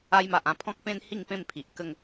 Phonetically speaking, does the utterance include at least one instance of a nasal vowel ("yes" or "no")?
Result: yes